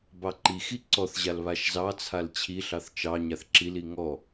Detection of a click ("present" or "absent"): present